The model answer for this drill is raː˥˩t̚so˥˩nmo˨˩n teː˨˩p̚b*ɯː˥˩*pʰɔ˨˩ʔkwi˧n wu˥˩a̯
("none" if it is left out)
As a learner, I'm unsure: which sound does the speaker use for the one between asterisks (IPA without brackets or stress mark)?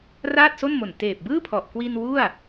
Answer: ɯː˥˩